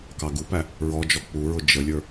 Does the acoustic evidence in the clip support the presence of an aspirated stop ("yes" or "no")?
no